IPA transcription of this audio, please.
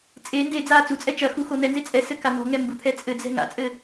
t͡sʼ e n d e d͡z aː t͡s u t͡sʼ ɛ t͡ʃ ɐ x u x o n̪ ɛ n z e t͡sʼ ɛ s ɘ k a n̪ ɔ̤ ŋ ɛ m b u t̪ʰ ɛ t͡sʼ ɘ d͡z ɛ̤ ŋ a̰ t͡sʼ ɘ

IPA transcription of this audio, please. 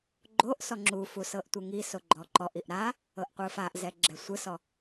ɡ͡ǃ o ʔ s ɔ ŋ͡ǁ u f u s ɤ ʔ tʷ ɯ ŋ i s o ɡ͡ǃ ɔ ǃ ɔ ʔ i ʔ ɾ a | ɤ ʔ qʷ ɯ f a ʔ z ɛ ɡ͡ǁ ɛ sʷ ɯ s ɔ

